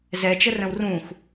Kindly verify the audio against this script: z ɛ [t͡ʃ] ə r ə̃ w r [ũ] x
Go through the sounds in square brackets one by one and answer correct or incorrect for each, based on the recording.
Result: correct, correct

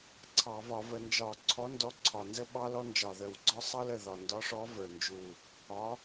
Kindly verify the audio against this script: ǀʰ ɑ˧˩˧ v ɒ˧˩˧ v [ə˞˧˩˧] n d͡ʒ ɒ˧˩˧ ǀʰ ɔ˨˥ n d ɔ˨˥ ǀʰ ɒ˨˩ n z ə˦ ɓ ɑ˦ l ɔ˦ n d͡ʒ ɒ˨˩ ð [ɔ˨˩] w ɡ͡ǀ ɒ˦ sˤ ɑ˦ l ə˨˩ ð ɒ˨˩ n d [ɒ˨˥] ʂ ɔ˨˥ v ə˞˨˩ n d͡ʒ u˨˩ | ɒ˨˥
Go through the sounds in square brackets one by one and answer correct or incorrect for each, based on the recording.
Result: incorrect: ə˧˩˧, incorrect: ə˨˩, correct

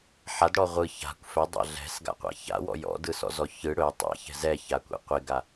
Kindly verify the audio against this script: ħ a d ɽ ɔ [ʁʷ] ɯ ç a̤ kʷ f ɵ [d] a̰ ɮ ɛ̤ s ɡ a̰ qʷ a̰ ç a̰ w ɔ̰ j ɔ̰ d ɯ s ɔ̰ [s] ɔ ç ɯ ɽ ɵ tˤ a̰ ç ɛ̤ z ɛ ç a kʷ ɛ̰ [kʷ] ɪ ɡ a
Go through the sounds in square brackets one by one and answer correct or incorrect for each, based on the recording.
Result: correct, incorrect: dˤ, incorrect: z, incorrect: qʷ

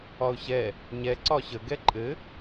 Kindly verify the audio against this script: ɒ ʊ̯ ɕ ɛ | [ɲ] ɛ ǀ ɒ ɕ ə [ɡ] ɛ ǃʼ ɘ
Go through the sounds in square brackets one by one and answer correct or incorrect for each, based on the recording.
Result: correct, correct

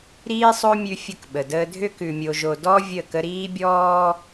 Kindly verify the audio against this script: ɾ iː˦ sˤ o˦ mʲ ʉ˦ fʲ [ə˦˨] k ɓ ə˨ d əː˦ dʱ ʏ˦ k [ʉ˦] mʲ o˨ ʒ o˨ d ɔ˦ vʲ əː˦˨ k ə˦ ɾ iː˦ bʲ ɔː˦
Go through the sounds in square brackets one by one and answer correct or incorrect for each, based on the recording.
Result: correct, incorrect: ʉ˨

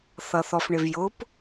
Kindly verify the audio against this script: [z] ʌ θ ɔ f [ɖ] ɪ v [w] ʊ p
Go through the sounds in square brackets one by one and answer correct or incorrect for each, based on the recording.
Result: incorrect: θ, incorrect: ɳ, incorrect: j

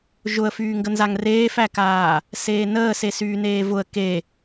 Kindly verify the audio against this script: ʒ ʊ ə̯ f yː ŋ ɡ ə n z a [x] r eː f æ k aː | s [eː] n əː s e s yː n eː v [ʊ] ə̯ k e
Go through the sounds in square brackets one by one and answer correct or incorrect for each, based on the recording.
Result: incorrect: ŋ, correct, correct

